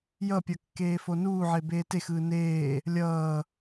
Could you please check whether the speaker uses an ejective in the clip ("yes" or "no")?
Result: no